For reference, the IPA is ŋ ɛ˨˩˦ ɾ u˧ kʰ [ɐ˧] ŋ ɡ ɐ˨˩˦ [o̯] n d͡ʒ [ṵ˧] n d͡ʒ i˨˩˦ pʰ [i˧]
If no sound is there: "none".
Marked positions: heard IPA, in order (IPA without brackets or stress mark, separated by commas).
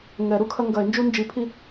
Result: ɐ˧, e̯, u˧, i˧